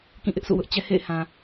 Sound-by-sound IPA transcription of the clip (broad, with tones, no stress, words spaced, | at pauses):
kĩ˦˨ʔɪ˦ʔsṵ˦˨wʊ˦ʔ t͡ɕɛ˦hḛ˦˨ɪ̯hã˨